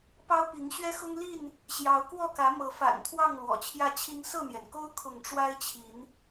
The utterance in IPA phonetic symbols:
pɑ˦ʊ̯pi˨˦ŋ ɕɥɛ˦xʊ˦ŋli˥˨n | ɕjɑ˨˦ʊ̯kwɔ˥˨kä˨˦ mɤ˨˦fa̰˨˩nt̪ʰwɑ˥˨ŋ lwɔ̰˨˩t͡ɕʰjä˥˨t͡ɕʰi˦ŋ sɤ˥˨n̪jɛ˩nko˦ʊ̯ kʰʊ˥˨ŋ ʈ͡ʂwa˦ɪ̯t͡ɕʰi˨˦n

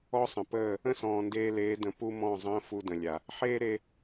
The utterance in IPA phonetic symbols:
ɔ˦sˤə̃˨pəː˦˨ | ə̃˦sɔ̃ː˨ndeː˧leː˨˦ də̃˧ pu˦mɔ̃˦˨zˤə̃ː˦ fu˧də̃˨lʲa˨ | ħeː˦ɾe˧

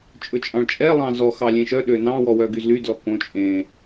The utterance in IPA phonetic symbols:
t͡ʃʼɵt͡ʃʼɑ̃ɭt͡ʃʼɛ lˠɑ̃zɔ xɑlʲẽʃœ ɗønɑ̃ wɔwœɡyzly dlɔkõ t͡ʃʼẽ

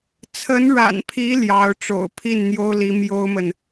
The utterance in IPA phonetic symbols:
t͡sʰə˧˥nɻa̰˨˩npʰi˧˥ ljɑ˧˥ʊ̯ʈ͡ʂo̰˨˩ʊ̯ pʰi˥˩nn̪jo˥ʊ̯ li˧˥mjo˥ʊ̯mə˨n

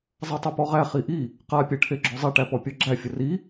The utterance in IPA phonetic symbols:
zˤatˤepɔʁæ χiʔi | qa pʲæʈʰeɡ͡ǁɔzˤi ʈæpɔpʲɔɡ͡ǁæ fʲəri

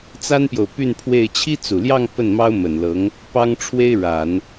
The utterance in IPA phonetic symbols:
t͡sa˥npjo˨ʊ̯ py˥˧npʰwe˥˩ɪ̯ t͡ɕʰi˥t͡su˨˩ljɑ˥˧ŋ pə˥˩nmɑ˥ʊ̯ mə˨˩nlɤ˧˥ŋ | pɑ˥ŋʈ͡ʂʰwe˥ɪ̯ ɻa˨˩˦n

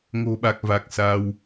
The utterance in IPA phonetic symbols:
ŋo̤˨˩ɓa˨˩k̚ va˨˩k̚ sa˧w

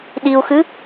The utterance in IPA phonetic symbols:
ɗiu̯xɨ

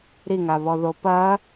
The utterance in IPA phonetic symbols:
ɾiŋaβɔðo pɐ

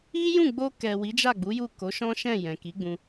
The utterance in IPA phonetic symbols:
i˦jũ˦˨ɡ͡bo˧ kɛ˨ wi˨˦d͡ʒa˦˨ɡ͡bu˨˦ju˦˨ ko˨˦ʃɔ̃˦ ʃɛ̃˦˨ jɛ̃˨ki˨˦ɡ͡bũ˧

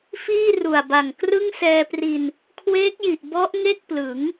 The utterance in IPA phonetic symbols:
fiː˥˩ru˨˩a̯ba˨˩ŋ krɯ˥˩ŋsɛː˧pri˧n | kʰweː˦˥k̚ji˨˩ʔ bɔ˦˥ʔ ŋe˥˩k̚plɯ˩˦ŋ

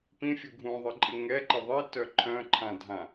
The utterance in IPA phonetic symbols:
pĩfʲu ɡʱũðˤɪǃʼɪ ŋɛǃɪ ðˤitœ ǃʰœ̃ǃʰãdʱã

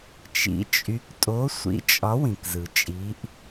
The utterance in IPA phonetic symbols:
t͡ʃḭ˨˥t͡ʃʼy˨˥k tʼo˨˥sʷḭ˨˥t͡ʃʼɒ˨˥ wĩ˩kzɯ˩t͡ʃʼi˨˥ʔ

